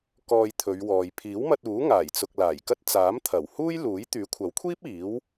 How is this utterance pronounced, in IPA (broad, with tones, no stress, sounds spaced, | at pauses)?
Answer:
k ɔː˧ j t̪ʰ ɵ˨˧ ɥ w ɔː˨ j pʰ iː˨˥ w m ɐ˧ t̚ uː˨˥ ŋ aː˨˩ j t͡s ʊ˨ k̚ l aː˨˩ j k ɐ˥ t̚ t͡s aː˨˥ m t̪ʰ ɐ˨˩ w h uː˥ j l uː˨˥ j t̪ yː˨˥ kʷʰ ɐ˨˥ w kʷʰ iː˥ p̚ iː˨˥ w